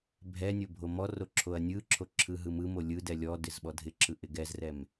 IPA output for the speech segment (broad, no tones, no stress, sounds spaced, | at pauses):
bʱ ɛ nʲ o bʱ o m ɔ r o ǁʰ o ɐ̯ nʲ ɯ ǁʰ o ǁʰ ɯ ɦ ɯ m ɯ m o lʲ ɯ d ɛ lʲ ɔ d ɪ z ɓ ɔ dʱ ɪ ǁʰ ɯ ʔ ɪ ɡ ɛ z r ɛ m